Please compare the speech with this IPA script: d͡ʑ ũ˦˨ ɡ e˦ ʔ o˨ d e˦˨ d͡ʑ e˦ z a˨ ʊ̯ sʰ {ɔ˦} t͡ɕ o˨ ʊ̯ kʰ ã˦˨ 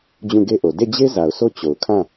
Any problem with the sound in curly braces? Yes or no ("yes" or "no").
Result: yes